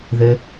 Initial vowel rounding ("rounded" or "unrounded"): unrounded